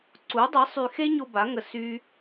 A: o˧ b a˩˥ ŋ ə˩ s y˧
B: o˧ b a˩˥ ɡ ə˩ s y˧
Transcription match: A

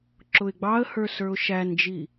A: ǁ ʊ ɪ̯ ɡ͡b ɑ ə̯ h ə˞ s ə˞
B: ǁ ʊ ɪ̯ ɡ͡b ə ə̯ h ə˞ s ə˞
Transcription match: A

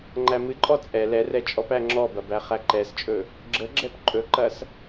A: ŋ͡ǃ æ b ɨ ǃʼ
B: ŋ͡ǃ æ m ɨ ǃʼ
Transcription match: B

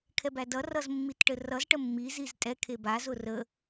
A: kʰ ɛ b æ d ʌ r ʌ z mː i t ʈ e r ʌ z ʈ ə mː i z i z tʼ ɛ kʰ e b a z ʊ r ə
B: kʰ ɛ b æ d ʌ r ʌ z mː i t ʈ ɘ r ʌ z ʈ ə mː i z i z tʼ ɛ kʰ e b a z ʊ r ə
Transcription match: B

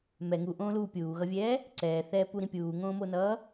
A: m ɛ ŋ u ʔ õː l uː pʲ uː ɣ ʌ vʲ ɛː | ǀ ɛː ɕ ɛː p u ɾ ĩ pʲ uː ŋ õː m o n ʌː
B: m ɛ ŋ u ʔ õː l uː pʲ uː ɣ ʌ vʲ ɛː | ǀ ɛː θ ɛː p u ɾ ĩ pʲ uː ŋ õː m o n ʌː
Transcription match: B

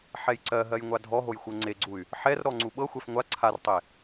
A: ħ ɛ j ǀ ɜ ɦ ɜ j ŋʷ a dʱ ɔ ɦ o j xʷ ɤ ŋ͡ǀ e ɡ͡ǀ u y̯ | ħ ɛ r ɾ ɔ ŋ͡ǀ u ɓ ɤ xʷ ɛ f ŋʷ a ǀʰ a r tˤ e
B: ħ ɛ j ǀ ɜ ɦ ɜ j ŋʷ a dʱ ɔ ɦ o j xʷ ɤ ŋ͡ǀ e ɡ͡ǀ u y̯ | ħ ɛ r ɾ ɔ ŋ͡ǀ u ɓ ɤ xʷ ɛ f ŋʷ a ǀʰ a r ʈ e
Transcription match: A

